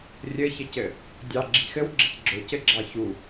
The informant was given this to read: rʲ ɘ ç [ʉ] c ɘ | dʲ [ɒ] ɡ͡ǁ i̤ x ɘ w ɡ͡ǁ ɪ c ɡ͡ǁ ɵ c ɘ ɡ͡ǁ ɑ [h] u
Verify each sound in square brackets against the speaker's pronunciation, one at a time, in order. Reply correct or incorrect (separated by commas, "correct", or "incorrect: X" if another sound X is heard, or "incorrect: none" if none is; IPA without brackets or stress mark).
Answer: incorrect: ɘ, incorrect: ɑ, incorrect: ç